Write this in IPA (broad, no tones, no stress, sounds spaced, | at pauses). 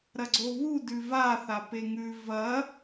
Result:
ɾ ɐ ɡ͡ǀ o β u d ʉ v a θ a p e ŋ ʉ v ɐ